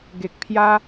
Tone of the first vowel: low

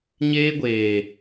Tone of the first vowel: high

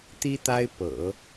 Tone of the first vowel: high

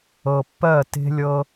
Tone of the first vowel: low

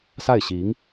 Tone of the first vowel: falling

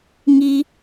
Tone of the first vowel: high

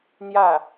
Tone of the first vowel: falling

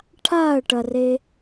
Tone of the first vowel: falling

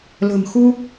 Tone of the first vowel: low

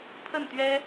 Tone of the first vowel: falling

